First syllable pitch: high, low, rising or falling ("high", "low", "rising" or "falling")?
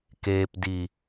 low